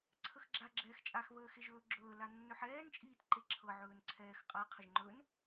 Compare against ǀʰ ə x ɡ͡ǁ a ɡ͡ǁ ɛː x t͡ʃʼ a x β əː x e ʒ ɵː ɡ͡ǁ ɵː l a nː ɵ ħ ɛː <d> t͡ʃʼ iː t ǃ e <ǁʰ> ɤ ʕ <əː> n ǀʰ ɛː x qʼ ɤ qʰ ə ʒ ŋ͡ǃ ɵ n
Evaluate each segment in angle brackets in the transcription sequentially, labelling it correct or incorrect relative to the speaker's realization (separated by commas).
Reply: incorrect, correct, incorrect